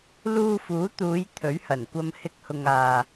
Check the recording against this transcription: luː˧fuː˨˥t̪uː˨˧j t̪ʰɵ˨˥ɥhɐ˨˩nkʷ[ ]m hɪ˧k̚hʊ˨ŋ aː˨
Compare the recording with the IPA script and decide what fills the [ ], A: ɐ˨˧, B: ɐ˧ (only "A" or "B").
B